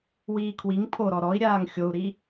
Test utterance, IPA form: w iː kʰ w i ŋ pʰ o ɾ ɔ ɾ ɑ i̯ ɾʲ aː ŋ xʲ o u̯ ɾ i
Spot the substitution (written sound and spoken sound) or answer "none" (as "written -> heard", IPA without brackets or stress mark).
ɑ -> ɔ